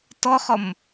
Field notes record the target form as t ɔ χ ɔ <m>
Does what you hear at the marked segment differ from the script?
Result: no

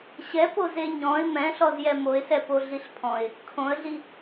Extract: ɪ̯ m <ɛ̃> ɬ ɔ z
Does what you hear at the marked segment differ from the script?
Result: no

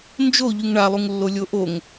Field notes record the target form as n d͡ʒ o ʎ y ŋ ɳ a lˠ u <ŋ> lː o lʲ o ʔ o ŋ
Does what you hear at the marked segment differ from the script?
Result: no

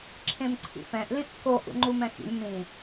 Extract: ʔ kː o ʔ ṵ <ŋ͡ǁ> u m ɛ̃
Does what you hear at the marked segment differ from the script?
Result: yes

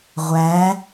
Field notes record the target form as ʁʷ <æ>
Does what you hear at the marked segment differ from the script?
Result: no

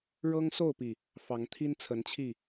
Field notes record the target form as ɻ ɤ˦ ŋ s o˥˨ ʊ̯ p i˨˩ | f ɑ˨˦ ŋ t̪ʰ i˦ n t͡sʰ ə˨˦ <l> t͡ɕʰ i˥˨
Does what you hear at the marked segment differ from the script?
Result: yes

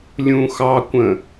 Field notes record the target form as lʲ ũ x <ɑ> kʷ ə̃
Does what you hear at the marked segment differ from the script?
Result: no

